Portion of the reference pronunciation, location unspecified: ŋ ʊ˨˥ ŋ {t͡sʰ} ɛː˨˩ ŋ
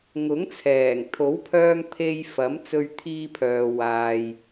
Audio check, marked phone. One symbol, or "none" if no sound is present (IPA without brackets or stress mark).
t͡sʰ